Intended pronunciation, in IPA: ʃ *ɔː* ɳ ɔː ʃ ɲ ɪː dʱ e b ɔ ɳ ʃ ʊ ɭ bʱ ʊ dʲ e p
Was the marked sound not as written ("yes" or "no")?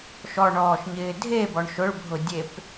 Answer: yes